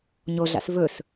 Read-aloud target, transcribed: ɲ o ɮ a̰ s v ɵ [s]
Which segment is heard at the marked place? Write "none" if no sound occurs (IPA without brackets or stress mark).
s